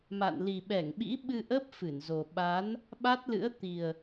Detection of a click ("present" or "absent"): absent